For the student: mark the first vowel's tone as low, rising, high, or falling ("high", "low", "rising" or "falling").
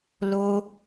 high